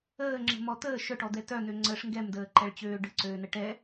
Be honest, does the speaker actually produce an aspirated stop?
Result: no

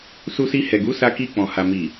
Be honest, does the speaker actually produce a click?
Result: no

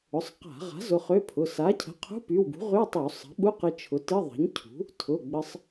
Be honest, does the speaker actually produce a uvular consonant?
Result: yes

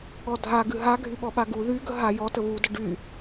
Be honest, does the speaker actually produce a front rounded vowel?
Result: yes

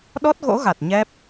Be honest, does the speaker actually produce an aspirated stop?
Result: no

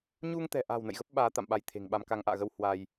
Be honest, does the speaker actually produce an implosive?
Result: yes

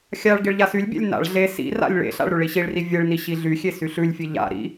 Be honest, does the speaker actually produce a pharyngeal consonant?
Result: no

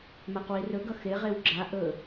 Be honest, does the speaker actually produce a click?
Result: yes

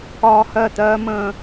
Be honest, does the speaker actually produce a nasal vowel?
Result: yes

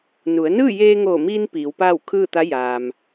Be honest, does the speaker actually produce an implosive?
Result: no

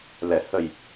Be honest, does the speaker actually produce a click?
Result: no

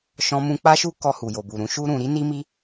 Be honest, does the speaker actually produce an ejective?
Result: no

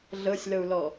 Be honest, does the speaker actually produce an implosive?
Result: no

